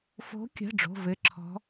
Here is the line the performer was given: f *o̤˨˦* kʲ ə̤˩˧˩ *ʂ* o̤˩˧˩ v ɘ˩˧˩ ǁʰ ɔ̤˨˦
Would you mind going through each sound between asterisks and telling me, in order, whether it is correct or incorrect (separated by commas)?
correct, incorrect